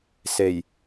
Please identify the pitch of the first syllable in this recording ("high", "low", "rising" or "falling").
low